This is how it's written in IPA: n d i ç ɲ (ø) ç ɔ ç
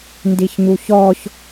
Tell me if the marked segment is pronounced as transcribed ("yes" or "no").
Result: no